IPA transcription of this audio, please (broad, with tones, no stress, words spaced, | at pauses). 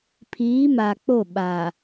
pʰiː˨˦ma˨k͡po˦˨ɓa˨